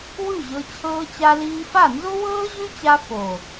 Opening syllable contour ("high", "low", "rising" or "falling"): falling